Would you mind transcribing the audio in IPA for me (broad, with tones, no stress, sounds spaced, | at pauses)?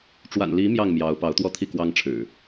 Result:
ʈ͡ʂ w a̰˨˩ n l i˨˦ m j ɑ˥˨ ŋ m j ɑ˨˦ ʊ̯ p ɑ˨˦ ʊ̯ t̪ w ɔ˦ t̪ʰ i˥˨ k w ɑ˦ ŋ ʈ͡ʂʰ ɻ̩˨˩